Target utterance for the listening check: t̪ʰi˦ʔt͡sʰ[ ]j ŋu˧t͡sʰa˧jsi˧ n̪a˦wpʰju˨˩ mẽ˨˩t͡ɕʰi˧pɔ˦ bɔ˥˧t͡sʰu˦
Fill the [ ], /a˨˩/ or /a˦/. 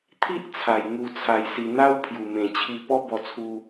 a˨˩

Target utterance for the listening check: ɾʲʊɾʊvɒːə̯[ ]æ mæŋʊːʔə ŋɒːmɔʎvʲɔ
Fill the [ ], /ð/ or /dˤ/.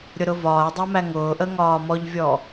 dˤ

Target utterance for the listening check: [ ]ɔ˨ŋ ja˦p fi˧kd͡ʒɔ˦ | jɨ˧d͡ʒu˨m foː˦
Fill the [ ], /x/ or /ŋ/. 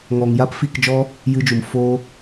ŋ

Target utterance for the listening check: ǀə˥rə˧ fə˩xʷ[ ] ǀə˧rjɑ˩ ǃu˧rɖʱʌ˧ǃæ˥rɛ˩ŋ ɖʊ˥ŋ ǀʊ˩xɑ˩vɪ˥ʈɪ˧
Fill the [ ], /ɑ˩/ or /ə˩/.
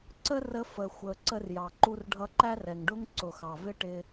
ə˩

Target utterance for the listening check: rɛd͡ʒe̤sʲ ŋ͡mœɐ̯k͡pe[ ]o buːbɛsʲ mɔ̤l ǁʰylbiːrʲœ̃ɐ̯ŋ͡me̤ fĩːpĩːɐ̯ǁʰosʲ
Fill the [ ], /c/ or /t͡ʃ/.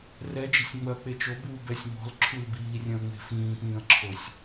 t͡ʃ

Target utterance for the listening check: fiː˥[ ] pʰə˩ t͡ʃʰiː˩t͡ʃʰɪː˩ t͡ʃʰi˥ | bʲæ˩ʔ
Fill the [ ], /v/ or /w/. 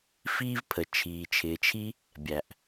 v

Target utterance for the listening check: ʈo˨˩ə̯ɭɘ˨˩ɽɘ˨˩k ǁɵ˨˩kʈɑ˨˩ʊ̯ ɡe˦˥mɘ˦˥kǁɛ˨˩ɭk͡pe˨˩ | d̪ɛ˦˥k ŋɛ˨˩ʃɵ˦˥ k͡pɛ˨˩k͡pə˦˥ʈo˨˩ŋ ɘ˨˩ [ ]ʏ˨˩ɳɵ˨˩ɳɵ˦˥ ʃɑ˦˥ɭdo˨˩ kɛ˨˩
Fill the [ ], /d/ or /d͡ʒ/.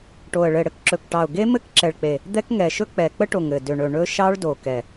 d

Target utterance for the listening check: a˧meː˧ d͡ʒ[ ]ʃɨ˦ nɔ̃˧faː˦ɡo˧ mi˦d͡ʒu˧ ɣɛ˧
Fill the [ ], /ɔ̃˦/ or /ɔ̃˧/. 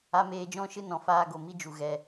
ɔ̃˦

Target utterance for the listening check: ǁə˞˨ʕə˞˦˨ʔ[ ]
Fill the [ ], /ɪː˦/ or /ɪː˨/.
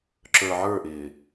ɪː˨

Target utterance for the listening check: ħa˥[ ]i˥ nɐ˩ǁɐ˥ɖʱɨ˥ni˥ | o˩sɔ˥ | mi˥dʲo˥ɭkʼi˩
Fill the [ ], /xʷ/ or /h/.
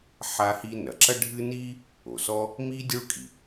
h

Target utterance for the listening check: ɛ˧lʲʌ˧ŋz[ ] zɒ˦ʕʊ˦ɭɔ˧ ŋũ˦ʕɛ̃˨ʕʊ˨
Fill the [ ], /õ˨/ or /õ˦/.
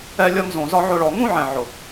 õ˨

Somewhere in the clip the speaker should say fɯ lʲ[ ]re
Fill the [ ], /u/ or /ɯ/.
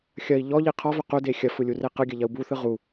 u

